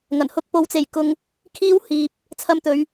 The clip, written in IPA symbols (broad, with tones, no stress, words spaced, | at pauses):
ŋɐ˨˩nhʊ˥k̚ po˨˧wt͡se˨˩j kʊ˨ŋ | kʰiː˥whiː˨p̚ | t͡sʰɐ˧mt̪ɵ˨˧ɥ